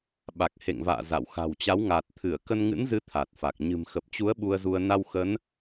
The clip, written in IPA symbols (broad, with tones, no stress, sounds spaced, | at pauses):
ɓ a˨˩ k̚ h ḛ˧˨ ŋ v a̰ː˧˨ z a̰˧˨ w x a̤˨˩ w t͡ɕ a˨˦ w ŋ a˨˩ t̚ t̪ʰ ɨ˧˩ ə̯ k ə˧ n ŋ ɨ̰˧˥ n z ɨ˨˦ t̪ʰ a˨˩ t̚ f a˨˩ k̚ ɲ ɨ̤˨˩ m x ə˨˩ p̚ t͡ɕ u˨˦ ə̯ ɓ u˧ ə̯ z u˧ ə̯ n a˧ w x ə˨˦ n